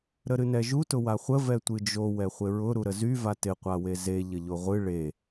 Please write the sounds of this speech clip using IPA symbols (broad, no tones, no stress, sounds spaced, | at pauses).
ɾ ə ɾ ɨ n ɛ ʒ u t ʊ w a χʷ ə v ɛ tʷ ɨ d͡ʒ o w ɛ χʷ ɪ ɹ ʊ ɾ u ɾ ə z y v a t ɪ qʷ a w e z e ʎ ə ʎ o ʁʷ ɨ ɭ e